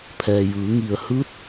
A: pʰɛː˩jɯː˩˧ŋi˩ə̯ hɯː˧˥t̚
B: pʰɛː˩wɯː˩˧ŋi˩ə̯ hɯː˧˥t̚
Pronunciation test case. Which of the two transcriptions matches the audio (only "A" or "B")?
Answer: A